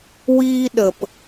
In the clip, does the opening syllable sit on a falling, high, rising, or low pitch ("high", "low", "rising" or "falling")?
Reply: high